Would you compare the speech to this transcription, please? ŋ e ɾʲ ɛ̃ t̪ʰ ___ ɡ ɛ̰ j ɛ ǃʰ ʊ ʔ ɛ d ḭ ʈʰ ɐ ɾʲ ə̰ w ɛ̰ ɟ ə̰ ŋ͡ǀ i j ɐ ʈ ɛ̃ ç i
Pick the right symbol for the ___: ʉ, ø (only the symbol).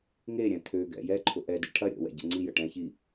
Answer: ø